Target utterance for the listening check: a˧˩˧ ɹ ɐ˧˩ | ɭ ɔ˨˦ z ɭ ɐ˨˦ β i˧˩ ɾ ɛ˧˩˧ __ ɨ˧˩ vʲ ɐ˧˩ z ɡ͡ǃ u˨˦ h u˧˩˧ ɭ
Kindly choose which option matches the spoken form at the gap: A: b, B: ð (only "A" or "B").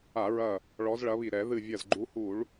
B